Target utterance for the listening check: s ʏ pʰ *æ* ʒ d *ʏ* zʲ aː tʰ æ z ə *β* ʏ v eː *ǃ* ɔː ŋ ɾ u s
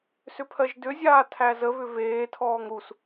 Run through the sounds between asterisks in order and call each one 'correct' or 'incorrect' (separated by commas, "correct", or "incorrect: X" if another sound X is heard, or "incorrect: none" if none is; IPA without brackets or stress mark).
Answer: incorrect: ɜ, correct, correct, incorrect: tʰ